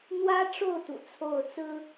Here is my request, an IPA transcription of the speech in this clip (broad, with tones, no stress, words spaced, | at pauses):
n̪wä˥ʈ͡ʂo˥˩ʊ̯ t̪ṵ˨˩t͡sʰo˥˩ʊ̯ t͡sɹ̩˥